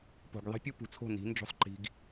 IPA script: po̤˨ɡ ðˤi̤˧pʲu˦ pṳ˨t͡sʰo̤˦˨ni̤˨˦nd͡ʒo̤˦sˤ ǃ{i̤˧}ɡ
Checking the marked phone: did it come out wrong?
no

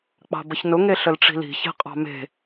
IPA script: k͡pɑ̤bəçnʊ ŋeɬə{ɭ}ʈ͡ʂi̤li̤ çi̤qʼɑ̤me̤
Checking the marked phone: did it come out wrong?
yes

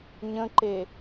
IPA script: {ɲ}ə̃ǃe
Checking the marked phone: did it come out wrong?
no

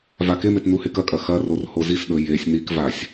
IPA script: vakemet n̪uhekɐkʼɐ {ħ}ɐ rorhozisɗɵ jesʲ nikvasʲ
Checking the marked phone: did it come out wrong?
yes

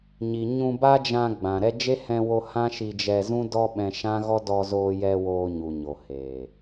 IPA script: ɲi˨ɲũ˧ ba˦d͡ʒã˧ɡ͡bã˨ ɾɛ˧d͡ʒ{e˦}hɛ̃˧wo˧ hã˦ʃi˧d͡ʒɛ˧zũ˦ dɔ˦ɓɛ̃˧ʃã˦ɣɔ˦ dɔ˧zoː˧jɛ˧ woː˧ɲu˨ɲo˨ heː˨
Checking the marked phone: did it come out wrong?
no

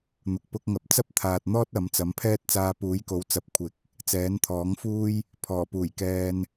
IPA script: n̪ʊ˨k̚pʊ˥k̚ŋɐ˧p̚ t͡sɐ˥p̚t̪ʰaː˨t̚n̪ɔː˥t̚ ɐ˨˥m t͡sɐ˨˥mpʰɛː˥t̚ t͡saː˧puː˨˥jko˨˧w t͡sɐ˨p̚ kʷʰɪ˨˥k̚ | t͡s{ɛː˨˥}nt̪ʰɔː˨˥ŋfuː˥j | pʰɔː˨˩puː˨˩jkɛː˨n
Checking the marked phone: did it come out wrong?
no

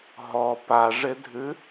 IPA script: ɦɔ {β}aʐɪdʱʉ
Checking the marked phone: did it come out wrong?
yes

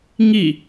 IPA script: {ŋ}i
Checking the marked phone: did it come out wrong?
no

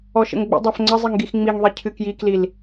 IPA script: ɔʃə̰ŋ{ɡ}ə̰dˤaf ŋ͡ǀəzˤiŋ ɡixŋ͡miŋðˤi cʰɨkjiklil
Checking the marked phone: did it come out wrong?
yes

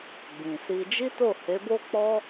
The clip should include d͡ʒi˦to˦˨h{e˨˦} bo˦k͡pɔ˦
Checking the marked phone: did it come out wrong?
no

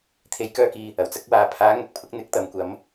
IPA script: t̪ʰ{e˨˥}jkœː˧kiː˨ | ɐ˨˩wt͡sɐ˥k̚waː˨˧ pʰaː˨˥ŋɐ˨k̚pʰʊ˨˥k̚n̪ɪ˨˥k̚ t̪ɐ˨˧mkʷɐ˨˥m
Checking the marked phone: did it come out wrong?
no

